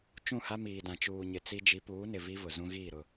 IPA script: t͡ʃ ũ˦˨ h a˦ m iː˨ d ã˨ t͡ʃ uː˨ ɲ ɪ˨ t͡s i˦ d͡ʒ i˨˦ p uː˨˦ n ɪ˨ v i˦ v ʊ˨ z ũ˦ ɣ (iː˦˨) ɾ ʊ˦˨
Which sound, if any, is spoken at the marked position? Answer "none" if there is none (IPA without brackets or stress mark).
iː˦˨